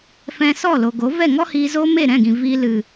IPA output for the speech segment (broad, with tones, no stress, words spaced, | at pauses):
fɛ̃˧sɔ˦˨lo˨ɡo˨˦ vɛ˦˨ŋɔ˦hiː˧ zo˦me˦˨ ɾɛ̃˦˨ɡĩ˨ viː˧lɨ˨